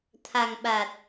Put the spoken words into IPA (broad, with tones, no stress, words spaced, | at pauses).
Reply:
t̪ʰa˨˩ŋɓa˨˩t̚